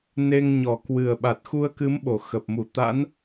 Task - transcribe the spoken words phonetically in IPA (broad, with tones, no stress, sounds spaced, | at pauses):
n e˧ ŋ ɲ ɔ˨˩ k w ɨ˨˩ ə̯ ɓ a˨˩ t̚ x u˧ ə̯ k ɨ˨˦ m ɓ o˨˩ x ə˨˩ p̚ m u˧˩ t̪ a̰˧˥ n